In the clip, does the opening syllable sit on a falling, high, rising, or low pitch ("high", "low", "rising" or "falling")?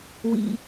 low